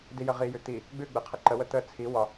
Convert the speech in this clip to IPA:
d i j ə ʁ i j ʉ t̪ i | ɡ͡b ʉ ɡ͡b e qʰ ə ǃ ə w ə t̪ ə t͡sʰ i w ɒ

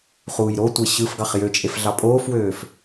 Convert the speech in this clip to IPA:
χ uː j ɾ o tʷ e ɕ ɯ f ɡ ɑ χ j ø t͡ʃʼ e f ɮ ɑ pʼ oː f w øː f

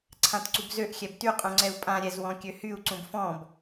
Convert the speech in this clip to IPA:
ǀʰ ã t ǀ u b z ø ʔ xʲ ɛ b t y qʼ ũ ŋ͡ǀ ɛ u̯ pʼ ã ɾʲ ɛ z w ɔ̃ kʲ ø h y u̯ ǀ ũ b f ɔ̃ b

